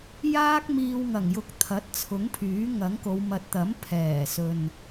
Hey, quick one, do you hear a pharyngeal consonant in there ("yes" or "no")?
no